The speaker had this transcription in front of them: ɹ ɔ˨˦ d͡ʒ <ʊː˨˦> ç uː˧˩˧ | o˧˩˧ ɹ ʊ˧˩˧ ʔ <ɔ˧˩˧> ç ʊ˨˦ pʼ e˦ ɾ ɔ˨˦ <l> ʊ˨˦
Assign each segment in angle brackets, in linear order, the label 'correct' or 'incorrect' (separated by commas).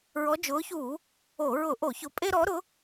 correct, incorrect, incorrect